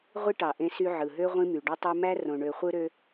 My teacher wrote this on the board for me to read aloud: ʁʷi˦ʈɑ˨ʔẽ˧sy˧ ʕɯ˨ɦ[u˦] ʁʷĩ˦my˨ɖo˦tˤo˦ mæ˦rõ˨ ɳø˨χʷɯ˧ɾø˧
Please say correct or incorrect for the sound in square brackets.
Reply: incorrect: ø˦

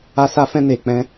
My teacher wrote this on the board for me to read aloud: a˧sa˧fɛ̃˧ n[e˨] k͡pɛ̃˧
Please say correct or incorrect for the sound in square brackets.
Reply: correct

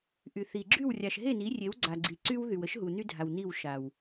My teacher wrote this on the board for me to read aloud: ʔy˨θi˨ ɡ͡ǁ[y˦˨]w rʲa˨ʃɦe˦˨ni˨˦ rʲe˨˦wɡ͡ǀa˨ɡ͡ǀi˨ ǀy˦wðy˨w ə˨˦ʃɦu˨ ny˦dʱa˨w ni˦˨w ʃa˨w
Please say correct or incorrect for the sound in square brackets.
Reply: correct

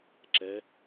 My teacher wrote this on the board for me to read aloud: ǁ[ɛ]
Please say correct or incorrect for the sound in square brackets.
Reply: correct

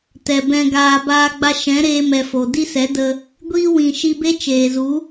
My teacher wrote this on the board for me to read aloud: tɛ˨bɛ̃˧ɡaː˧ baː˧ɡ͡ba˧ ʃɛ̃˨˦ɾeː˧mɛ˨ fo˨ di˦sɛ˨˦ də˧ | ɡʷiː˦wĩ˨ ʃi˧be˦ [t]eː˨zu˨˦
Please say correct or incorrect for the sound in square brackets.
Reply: incorrect: t͡ʃ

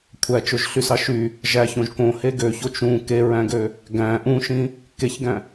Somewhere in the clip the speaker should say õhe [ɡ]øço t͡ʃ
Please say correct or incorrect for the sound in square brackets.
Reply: correct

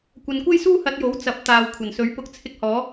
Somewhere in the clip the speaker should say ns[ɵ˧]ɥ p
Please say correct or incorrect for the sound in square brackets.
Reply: incorrect: ɵ˨˥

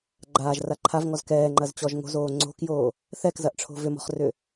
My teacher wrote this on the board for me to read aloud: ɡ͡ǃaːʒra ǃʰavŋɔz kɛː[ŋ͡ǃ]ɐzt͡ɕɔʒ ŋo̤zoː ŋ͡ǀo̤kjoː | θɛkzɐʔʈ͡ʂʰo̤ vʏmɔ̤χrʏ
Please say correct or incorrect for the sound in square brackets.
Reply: correct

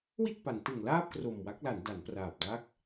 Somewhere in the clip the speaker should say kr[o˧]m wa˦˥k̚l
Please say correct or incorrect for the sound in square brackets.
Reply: incorrect: o˨˩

